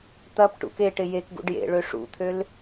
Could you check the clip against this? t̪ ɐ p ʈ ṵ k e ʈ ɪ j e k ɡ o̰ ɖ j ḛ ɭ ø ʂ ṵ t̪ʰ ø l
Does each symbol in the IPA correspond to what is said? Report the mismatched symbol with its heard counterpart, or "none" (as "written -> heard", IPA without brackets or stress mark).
o̰ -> ṵ